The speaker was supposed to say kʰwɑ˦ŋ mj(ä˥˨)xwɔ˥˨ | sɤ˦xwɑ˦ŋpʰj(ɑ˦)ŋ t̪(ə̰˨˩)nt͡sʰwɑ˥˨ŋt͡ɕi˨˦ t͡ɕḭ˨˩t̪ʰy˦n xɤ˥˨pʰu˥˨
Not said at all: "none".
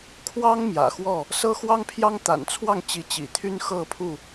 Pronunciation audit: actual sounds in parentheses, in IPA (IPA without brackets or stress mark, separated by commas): ä̰˨˩, ɑ˦, a̰˨˩